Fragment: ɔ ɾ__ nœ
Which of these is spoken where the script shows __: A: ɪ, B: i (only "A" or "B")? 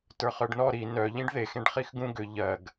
B